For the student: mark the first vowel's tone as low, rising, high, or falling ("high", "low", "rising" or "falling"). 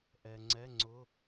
low